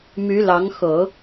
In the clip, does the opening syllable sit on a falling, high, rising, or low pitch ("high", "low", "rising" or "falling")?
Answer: rising